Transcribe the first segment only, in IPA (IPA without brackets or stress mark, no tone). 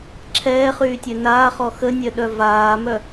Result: ǁʰ